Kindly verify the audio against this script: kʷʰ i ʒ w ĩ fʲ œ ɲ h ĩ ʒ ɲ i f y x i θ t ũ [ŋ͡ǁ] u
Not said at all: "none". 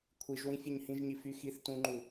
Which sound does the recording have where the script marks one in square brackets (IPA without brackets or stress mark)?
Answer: ŋ͡ǃ